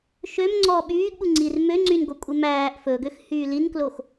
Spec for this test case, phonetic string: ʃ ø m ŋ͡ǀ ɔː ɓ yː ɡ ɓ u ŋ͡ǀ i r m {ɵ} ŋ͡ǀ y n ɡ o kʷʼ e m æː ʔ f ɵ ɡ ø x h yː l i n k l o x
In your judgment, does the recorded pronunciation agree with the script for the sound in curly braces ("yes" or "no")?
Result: no